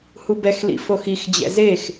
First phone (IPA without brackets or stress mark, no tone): h